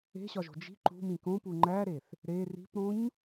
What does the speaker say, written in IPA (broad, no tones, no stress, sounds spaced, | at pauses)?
e̤ ɕ ɒ ʒ o̤ d͡ʒ i̤ ǃ ṳ m ĩ k õ p u ŋ͡ǃ æ ɾ e θ | ɾ e r i̤ p ɾ õ ɲ